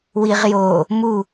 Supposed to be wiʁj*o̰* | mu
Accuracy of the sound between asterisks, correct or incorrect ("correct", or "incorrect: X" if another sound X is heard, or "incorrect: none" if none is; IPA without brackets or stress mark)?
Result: incorrect: o